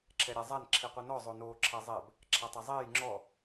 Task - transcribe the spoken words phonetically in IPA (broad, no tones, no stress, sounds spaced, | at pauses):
ǁʰ ɛ ɾʲ a zˤ a n ǁʰ i qʷ ɛ n ɔ zˤ o n oː ǁʰ ɛ zˤ ɛ b | ǁʰ a tˤ e zˤ eː j ŋ͡ǁ ɔ